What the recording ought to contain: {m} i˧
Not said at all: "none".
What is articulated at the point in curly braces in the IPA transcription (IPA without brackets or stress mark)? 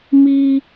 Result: m